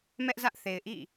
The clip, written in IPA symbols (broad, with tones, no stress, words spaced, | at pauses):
mɛ˦ʔzä˦ʔθe˨ɪ̯ʔḭ˦˨